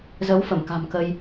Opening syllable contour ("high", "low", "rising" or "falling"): rising